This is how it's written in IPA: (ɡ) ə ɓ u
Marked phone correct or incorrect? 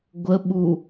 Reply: incorrect